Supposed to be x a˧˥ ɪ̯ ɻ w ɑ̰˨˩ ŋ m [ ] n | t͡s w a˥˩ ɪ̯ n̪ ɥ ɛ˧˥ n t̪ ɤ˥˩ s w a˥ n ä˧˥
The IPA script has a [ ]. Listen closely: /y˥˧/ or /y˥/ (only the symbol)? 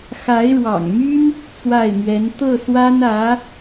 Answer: y˥